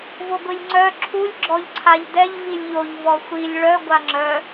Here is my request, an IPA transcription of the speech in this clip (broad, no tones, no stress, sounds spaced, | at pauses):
v o ɡʷ i lʲ ŋ͡ǀ œ ǁʰ u lʲ ɡ͡ǁ ɔ ʎ ǀʰ a ʎ d ɛ ʎ v i lʲ ʎ o ʎ v ɔ xʷ i lʲ ɭ œ ɡʷ a ŋ͡ǁ œ